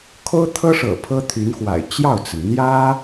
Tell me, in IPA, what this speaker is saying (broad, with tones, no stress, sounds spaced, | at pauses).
kʰ o˥ ʊ̯ t̪ʰ ɤ˥ ʂ ɤ̰˨˩ pʰ ɤ˥ t̪ʰ y˧˥ n x w a̰˨˩ ɪ̯ t͡ɕ j ɑ˥˩ ʊ̯ t͡s ə˩ n n̪ j ä˥